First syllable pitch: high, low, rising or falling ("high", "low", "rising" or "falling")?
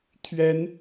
rising